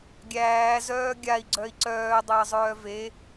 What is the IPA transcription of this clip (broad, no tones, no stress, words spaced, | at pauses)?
ɡʲæː zœːɡʲai̯ ɡ͡ǀœi̯ǀœː dˤəːzˤœːve